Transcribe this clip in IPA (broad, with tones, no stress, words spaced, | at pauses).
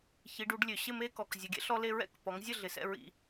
çi˨˦ɖu˨˦ɖ lʲø˨ɕɪ˥˨me˦ kɔ˨k zʲɔ˨˦ɡʲɛ̰˦ɬɔ˦le˦ ɹɛ̰˥˨kpɔ˨˦ŋzʲə˥˨ ɮɪ˨˩˦sɛ̰˥˨ɹḭ˦